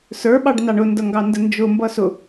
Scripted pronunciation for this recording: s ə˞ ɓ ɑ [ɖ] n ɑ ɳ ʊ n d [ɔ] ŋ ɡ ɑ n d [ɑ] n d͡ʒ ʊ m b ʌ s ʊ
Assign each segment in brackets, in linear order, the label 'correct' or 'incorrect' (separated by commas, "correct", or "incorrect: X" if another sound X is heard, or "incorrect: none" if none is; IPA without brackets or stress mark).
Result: correct, incorrect: ʌ, incorrect: ə